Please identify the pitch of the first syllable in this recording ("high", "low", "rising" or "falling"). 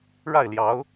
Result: falling